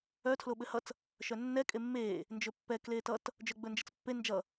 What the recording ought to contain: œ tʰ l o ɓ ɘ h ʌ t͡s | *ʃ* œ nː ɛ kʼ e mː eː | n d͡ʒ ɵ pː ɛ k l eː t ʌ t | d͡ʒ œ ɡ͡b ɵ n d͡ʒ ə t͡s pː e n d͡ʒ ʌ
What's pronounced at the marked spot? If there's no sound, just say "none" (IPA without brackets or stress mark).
ʃ